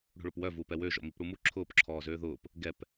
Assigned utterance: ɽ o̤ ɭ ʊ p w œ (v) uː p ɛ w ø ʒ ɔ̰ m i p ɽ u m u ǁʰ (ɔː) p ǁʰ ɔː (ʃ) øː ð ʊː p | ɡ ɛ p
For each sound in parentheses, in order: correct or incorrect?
correct, incorrect: ʊː, incorrect: z

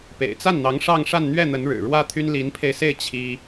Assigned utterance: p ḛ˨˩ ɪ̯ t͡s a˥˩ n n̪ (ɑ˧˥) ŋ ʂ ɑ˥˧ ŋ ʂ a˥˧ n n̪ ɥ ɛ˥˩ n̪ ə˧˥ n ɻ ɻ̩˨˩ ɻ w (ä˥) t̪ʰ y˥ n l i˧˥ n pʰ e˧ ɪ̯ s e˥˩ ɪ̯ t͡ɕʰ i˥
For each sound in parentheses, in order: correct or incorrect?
correct, correct

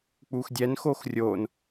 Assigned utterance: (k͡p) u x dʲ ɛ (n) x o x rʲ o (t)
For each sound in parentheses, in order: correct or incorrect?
correct, correct, incorrect: n

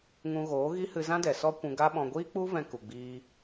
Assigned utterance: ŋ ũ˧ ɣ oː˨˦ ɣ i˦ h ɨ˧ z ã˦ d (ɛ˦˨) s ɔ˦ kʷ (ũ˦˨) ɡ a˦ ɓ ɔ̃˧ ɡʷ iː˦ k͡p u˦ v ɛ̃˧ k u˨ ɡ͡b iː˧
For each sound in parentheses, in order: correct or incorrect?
incorrect: ɛ˨, incorrect: ũ˧

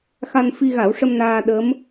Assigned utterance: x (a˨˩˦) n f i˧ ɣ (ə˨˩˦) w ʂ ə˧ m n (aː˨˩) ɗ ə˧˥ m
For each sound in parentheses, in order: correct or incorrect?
incorrect: a˧, incorrect: a˨˩˦, incorrect: aː˧

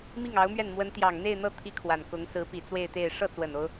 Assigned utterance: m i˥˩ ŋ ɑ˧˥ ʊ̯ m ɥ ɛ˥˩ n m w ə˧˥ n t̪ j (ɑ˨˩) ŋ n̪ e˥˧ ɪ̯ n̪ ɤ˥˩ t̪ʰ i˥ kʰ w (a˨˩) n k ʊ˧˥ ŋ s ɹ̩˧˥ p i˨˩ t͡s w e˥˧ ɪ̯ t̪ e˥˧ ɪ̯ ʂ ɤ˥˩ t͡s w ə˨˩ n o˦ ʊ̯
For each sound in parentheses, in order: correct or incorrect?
correct, correct

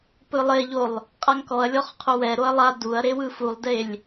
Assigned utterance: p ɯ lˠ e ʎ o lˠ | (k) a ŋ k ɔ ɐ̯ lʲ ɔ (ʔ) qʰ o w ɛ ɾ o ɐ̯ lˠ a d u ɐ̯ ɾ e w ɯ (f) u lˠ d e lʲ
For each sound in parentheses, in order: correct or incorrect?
incorrect: qʼ, incorrect: χ, correct

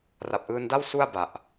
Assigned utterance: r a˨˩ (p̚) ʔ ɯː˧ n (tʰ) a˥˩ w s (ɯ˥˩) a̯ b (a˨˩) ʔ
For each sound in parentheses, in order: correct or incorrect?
correct, incorrect: d, incorrect: u˥˩, correct

